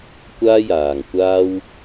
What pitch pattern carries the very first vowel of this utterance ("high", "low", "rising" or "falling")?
high